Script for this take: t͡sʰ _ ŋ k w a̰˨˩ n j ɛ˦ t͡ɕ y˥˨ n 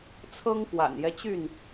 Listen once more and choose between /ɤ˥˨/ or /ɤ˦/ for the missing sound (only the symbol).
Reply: ɤ˦